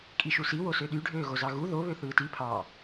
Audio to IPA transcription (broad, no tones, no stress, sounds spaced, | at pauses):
kʼ i ʃ u s i w o s ø ɗ y ɖʱ øː ɣ o z ɑ ɣ u ð o β ø θ ɯː t i pʰ ɑ